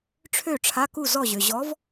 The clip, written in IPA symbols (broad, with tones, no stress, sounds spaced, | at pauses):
ʈ͡ʂʰ ø˥˩ ʈ͡ʂʰ a˧˥˧ k u˥˩ z ɔ˥˩ ʑ ø˨ ʑ ɔ˧˥ v